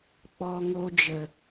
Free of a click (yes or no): yes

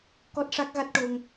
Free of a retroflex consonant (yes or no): no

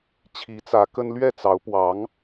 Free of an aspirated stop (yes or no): no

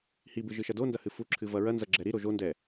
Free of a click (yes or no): no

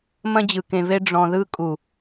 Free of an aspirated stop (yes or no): yes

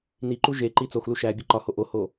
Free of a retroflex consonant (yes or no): yes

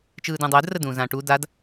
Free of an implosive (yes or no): yes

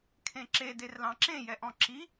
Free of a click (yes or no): no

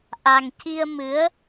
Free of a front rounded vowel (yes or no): yes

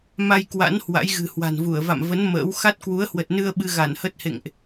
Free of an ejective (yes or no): yes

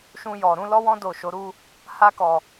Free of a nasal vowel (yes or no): no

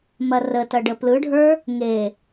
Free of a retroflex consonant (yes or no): no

